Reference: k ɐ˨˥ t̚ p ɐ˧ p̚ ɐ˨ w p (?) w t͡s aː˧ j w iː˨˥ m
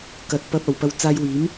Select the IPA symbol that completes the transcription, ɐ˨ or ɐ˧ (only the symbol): ɐ˧